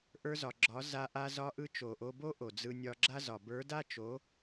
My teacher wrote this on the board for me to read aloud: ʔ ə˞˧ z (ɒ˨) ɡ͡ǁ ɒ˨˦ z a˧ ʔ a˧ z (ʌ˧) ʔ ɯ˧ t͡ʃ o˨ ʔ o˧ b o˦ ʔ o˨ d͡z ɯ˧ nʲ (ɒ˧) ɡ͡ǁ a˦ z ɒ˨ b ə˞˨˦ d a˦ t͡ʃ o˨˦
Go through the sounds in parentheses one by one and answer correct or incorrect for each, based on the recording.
correct, incorrect: ɒ˧, correct

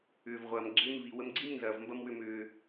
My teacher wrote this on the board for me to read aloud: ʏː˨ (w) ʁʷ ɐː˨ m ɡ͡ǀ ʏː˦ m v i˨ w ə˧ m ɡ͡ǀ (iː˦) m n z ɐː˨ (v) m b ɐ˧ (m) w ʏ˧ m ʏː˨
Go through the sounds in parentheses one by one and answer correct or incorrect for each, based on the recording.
incorrect: v, incorrect: i˦, correct, correct

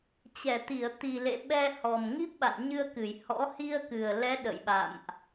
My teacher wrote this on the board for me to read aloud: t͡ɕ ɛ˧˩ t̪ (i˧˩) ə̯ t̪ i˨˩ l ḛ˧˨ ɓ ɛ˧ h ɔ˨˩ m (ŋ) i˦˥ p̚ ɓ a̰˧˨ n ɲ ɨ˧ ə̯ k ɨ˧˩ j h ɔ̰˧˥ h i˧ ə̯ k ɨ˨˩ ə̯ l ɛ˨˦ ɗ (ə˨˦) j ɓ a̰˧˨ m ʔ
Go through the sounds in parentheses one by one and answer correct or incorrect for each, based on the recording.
correct, correct, incorrect: ə̰˧˨

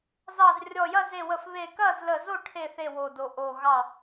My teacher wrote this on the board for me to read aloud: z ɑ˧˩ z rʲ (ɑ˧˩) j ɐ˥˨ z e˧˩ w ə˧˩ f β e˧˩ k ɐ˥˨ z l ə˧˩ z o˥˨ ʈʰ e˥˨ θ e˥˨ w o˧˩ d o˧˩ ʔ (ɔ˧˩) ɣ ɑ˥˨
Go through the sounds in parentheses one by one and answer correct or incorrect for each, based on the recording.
incorrect: ɔ˧˩, incorrect: o˧˩

